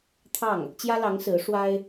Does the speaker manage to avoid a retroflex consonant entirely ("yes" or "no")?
no